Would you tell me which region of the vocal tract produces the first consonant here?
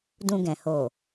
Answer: tongue tip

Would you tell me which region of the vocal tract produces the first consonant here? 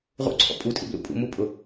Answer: uvula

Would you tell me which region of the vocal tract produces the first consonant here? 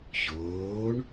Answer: palate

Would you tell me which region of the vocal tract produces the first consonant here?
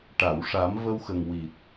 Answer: retroflex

